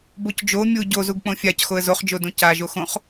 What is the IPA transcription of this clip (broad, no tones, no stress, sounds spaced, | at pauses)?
b o c d͡ʒ o mʲ u ɟ o z u ɡ k͡p õ fʲ a c x o ə̯ z o χ d͡ʒ o d õ c a ʒ o x õ χ